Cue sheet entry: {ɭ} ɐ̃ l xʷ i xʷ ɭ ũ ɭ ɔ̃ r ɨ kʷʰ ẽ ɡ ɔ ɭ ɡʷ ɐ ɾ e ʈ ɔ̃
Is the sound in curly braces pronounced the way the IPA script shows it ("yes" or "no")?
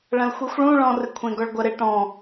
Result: yes